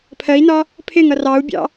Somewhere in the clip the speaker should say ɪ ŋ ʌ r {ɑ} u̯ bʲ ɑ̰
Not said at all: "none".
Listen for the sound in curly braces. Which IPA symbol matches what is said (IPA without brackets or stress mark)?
ɑ